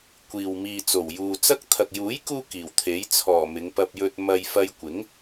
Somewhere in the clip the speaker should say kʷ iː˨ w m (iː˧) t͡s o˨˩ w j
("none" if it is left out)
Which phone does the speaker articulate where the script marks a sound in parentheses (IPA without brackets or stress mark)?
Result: iː˨